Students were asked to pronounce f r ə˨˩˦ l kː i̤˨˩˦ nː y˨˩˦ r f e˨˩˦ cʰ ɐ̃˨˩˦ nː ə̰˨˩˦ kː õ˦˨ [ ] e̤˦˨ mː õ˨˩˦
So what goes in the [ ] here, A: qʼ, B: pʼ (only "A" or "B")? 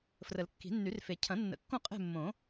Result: A